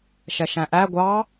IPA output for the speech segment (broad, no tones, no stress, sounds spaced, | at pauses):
ʃ ɛ ʃ æ̃ ʔ æ ɡʷ ɑ